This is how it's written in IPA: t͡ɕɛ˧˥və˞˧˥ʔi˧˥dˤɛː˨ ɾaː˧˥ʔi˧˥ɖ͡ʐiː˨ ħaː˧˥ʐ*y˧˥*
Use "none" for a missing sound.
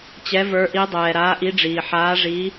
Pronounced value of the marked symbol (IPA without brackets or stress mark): i˧˥